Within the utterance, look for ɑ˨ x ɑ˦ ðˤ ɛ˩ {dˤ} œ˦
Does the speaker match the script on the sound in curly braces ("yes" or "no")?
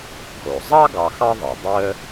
yes